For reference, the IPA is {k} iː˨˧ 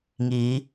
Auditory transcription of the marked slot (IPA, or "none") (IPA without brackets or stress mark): ŋ